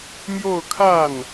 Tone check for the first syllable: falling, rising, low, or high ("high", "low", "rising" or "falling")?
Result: falling